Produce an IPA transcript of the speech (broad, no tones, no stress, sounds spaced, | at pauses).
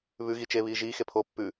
β ʉ ɣ i t͡ʃ e β iː ʒ iː x e pʰ oː pː ʉ